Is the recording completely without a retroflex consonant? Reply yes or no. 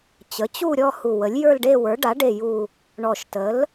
no